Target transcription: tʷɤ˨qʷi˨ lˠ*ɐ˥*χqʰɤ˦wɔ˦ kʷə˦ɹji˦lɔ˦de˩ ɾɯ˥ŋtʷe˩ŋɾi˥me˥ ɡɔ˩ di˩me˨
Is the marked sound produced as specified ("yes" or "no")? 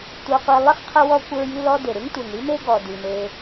no